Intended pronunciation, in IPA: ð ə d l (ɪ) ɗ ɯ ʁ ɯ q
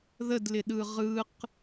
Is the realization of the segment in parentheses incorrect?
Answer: no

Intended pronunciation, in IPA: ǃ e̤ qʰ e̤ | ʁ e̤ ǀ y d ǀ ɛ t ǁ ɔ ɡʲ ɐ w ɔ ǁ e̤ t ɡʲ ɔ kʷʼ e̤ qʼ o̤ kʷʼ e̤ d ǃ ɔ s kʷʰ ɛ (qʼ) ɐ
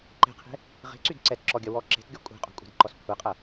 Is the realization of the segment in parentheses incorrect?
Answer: no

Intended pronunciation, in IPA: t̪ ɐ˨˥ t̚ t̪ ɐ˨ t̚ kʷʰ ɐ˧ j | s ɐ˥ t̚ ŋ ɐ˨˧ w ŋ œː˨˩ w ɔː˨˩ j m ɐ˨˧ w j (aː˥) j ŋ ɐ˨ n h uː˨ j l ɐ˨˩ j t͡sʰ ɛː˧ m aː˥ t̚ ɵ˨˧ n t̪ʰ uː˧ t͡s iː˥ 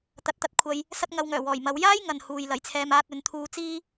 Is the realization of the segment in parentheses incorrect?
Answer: no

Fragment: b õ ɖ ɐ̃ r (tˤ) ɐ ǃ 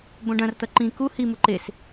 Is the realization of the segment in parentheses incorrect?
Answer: yes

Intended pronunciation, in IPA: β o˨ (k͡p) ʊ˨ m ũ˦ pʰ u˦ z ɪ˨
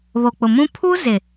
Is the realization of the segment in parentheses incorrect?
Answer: no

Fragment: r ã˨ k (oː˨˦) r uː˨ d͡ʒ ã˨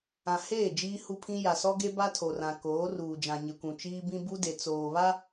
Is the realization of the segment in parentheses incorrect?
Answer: no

